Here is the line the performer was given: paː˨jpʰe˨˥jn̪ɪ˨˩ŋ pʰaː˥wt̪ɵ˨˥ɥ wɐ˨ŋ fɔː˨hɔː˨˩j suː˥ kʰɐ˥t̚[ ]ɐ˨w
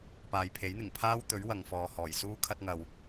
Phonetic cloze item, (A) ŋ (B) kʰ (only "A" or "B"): A